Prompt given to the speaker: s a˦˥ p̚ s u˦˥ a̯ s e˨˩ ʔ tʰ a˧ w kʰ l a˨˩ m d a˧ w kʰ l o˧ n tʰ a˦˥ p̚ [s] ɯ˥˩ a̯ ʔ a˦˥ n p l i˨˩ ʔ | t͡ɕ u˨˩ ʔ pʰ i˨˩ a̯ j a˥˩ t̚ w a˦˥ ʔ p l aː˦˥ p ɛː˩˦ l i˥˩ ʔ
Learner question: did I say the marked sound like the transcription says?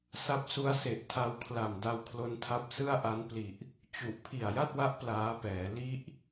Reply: yes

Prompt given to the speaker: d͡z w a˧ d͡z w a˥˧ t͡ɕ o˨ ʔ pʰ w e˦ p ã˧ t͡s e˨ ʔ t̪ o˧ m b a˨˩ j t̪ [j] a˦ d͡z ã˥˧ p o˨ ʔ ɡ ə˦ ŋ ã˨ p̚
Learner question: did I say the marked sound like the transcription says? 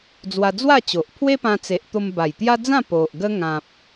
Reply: yes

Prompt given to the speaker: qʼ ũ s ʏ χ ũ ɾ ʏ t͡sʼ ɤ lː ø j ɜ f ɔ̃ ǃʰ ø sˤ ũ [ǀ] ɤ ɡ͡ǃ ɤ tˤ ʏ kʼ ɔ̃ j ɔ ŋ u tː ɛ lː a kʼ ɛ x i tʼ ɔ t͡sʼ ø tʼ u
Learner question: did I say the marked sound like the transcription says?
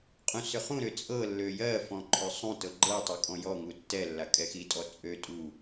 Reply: no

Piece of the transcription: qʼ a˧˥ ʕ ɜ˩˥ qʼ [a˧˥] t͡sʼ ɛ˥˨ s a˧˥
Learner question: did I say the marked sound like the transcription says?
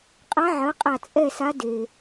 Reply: no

